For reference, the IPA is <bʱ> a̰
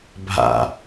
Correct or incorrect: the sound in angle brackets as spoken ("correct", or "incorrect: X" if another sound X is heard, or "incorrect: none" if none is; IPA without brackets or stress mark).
correct